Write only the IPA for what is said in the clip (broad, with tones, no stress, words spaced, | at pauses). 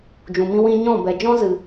d͡ʒũ˨mĩ˧wĩ˧ɲɔ̃˦˨ bɛ˨d͡ʒɔ̃˦zɨ˨